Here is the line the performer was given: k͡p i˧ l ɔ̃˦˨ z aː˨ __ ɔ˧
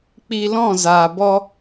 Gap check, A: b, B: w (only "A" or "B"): A